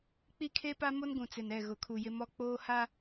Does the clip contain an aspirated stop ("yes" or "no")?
yes